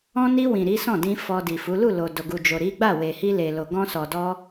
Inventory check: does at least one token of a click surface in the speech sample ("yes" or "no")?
no